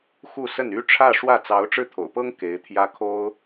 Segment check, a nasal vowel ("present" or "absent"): absent